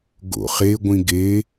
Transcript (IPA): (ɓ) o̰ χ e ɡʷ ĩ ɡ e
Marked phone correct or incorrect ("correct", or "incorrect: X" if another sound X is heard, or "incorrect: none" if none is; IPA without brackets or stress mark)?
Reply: incorrect: ɡ